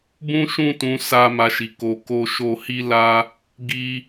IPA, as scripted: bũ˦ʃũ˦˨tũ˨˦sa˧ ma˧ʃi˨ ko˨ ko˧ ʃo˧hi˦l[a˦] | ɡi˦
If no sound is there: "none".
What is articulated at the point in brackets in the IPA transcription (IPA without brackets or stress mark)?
a˦